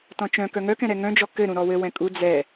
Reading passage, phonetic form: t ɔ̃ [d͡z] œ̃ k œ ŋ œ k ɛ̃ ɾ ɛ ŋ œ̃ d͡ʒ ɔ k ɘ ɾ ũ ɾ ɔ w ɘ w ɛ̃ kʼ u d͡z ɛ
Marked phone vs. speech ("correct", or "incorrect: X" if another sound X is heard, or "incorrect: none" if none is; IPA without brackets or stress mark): incorrect: t͡ʃ